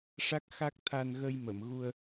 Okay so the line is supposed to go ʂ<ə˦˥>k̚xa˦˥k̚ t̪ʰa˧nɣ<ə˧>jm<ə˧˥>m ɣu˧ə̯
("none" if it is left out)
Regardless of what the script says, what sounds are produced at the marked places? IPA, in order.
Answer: a˦˥, ə˧, ə˨˩˨

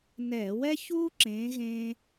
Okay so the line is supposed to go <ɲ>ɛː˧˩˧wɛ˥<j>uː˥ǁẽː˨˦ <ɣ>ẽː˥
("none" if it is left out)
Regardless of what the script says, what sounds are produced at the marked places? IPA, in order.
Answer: n, ç, ɣ

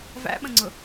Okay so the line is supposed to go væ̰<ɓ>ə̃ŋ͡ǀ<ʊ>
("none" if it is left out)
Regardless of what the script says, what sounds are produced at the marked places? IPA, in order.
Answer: ɓ, ʊ

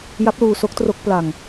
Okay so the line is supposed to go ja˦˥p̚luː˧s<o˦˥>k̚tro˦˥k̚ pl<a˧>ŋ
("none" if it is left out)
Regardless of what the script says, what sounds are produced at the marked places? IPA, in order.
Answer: o˦˥, a˧

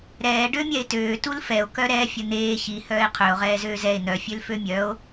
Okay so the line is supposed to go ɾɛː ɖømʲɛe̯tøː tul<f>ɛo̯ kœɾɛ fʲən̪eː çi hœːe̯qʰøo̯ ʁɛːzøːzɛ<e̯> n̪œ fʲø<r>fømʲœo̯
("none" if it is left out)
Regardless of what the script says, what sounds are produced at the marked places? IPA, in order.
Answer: f, e̯, l

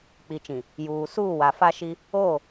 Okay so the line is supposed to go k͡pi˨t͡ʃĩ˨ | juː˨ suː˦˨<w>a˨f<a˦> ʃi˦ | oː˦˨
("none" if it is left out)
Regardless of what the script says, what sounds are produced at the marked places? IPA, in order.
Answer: w, a˦

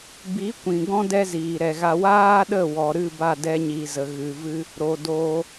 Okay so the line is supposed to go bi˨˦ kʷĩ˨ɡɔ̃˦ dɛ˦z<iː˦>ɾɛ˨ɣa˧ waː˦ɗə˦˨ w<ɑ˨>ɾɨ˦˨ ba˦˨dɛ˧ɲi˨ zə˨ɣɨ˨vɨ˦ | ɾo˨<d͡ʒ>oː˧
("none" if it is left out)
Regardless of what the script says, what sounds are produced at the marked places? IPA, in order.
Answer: iː˨, ɔ˨, d

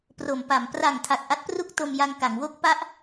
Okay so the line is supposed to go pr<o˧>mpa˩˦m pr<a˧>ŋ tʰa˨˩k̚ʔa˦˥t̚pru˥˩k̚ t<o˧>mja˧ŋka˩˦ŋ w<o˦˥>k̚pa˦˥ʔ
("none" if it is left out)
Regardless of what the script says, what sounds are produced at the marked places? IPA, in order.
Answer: o˩˦, a˨˩, o˧, o˦˥

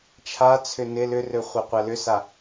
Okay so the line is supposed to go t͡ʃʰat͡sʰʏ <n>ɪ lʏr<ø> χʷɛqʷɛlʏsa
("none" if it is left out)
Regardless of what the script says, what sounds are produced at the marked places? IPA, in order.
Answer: n, ø

